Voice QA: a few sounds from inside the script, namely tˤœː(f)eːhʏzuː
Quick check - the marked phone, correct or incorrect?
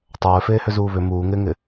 correct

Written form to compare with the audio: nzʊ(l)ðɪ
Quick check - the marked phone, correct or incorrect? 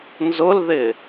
correct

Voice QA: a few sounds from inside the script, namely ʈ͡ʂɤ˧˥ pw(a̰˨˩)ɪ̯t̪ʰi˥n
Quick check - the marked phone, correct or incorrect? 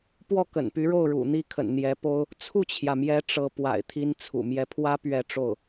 correct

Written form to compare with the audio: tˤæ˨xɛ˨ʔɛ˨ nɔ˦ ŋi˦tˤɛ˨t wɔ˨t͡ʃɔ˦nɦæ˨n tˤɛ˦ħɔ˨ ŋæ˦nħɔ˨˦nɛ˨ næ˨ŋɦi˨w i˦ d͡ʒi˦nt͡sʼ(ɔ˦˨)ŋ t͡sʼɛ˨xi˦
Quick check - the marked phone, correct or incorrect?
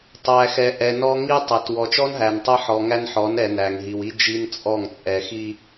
correct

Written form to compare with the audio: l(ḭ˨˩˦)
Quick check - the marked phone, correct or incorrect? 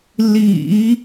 correct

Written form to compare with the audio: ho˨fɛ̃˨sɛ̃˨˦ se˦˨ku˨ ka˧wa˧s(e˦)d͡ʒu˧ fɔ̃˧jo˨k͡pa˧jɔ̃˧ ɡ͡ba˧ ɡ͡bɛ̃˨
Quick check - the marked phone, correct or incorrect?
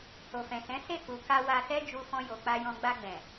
incorrect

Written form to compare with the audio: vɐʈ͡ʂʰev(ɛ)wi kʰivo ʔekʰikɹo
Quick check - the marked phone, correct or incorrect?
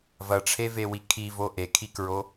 incorrect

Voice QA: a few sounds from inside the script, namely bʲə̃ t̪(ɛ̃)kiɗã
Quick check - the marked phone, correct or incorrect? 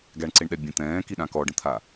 incorrect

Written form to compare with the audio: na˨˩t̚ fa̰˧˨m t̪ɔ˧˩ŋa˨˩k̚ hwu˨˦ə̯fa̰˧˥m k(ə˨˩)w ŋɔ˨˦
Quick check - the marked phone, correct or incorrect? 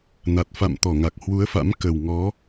correct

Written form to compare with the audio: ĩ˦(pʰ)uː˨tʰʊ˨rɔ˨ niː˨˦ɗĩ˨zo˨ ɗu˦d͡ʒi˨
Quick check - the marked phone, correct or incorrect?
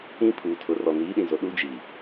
correct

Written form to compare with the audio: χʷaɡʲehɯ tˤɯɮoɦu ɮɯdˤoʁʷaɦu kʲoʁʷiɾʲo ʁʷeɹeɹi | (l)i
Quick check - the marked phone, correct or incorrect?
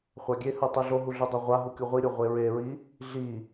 incorrect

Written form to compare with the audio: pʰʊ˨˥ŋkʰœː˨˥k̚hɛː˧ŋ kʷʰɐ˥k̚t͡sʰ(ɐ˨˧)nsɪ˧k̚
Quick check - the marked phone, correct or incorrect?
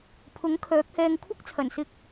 incorrect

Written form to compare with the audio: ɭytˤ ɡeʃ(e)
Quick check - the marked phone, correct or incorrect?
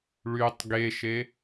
correct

